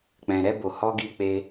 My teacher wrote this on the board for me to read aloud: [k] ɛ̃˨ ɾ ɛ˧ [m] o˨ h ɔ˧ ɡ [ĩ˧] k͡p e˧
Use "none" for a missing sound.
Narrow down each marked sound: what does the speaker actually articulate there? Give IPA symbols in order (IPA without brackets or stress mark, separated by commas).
k͡p, b, i˧